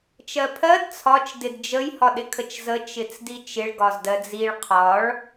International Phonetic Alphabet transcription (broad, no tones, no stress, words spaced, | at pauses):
t͡ʃɜpʰɜd t͡sʰɒt͡ʃ dɪdd͡ʒəj hɒɗɪkʰət͡ʃzə t͡ʃɪt͡sdit͡ʃɪɭ ɡɒzdɜd͡ziɭ qʰɒɭ